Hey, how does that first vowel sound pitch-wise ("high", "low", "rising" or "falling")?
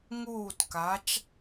falling